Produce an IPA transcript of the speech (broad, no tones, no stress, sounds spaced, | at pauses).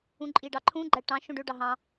ũ ǃʼ i ɖ ɑ ǃʰ ũ ɡ͡ǃ æ ʈ ɑ̃ ʃ õ ɖ ø ɖ ɑ ɦ ɑ̃